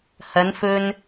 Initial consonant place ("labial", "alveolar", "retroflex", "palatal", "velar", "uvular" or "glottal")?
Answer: glottal